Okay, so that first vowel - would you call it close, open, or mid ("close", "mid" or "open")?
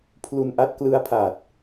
close